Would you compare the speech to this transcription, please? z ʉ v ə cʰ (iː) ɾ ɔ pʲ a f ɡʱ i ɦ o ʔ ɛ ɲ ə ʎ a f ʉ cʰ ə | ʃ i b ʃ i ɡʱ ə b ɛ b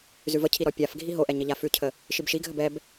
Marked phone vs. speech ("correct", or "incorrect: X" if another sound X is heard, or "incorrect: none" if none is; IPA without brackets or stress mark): incorrect: i